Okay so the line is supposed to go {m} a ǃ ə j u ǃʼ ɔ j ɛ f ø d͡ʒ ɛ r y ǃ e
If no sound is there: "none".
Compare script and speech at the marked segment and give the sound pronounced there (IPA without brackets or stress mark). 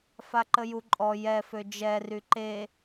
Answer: f